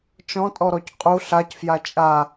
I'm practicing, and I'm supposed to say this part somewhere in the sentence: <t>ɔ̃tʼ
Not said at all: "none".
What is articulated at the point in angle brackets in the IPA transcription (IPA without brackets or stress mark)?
t͡ʃ